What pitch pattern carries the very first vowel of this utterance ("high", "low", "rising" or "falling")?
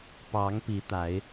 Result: rising